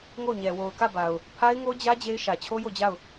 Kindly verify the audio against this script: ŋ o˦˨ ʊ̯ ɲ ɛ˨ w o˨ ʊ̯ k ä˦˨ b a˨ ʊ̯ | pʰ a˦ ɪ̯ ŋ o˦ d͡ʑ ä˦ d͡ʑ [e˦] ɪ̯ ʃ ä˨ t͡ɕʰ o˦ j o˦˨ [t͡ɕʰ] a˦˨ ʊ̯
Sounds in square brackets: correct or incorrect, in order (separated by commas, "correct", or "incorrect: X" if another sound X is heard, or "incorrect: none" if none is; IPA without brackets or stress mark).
correct, incorrect: d͡ʑ